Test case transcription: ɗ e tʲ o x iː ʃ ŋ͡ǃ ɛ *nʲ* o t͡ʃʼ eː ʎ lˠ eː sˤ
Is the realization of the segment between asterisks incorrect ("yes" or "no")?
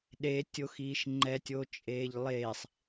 yes